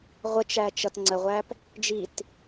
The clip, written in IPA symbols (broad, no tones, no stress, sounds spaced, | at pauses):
ʁʷ ə t͡ʃ æ t͡ʃ ʌ t ŋ͡ǀ ə ʁʷ æ p | d͡ʒ i t